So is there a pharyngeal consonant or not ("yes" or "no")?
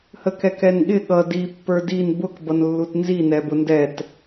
no